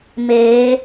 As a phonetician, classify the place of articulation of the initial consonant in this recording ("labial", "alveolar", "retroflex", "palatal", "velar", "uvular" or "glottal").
labial